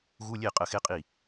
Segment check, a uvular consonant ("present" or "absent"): present